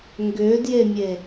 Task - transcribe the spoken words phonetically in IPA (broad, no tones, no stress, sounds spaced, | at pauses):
ŋ ɡ ʏː d j e mʲ e